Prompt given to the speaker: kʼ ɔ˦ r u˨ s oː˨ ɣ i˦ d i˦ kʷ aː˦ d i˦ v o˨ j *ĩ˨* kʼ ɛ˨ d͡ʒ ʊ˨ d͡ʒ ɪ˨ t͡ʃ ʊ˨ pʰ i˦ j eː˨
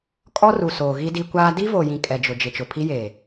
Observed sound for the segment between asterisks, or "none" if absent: ĩ˨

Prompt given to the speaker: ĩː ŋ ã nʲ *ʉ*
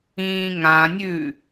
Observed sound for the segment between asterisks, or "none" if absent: ʉ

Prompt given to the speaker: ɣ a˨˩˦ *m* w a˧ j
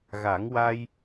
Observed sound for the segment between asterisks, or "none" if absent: ŋ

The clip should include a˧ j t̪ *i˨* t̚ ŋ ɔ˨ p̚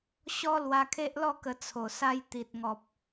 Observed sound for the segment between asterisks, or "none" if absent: i˨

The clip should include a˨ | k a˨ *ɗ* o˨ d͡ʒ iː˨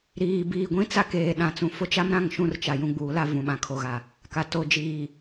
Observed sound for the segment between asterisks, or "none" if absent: t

